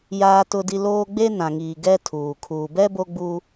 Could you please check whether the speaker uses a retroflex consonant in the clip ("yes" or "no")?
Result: no